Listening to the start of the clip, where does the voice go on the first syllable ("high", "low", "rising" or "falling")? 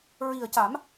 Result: low